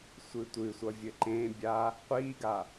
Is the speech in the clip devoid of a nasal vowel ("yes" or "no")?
no